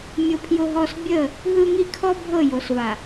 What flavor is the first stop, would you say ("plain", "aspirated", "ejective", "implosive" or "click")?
aspirated